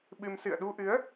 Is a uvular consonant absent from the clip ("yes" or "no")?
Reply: yes